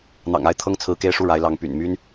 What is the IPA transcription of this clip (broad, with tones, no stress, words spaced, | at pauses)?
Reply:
n̪ɑ̰˨˩ŋa˥˩ɪ̯t̪ʰɤ˥ŋ t͡sʰɹ̩˧˥ke˥˧ɪ̯ʂu˥˩ ɻa˧˥ɪ̯lɑ˧˥ŋ py̰˨˩nmy˥n